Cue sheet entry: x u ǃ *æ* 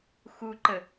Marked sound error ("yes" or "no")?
yes